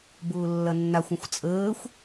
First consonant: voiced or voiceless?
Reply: voiced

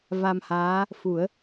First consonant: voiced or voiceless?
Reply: voiced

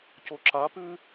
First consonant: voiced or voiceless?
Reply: voiceless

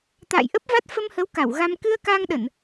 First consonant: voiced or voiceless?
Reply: voiceless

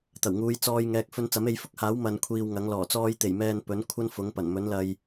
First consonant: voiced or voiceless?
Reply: voiceless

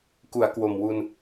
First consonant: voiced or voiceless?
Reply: voiceless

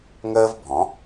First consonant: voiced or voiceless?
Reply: voiced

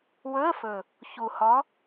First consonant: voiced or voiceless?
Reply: voiced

